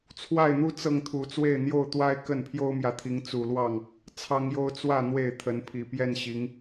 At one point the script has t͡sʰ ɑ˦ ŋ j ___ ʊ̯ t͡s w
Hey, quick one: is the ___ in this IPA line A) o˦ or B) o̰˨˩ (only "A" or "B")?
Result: A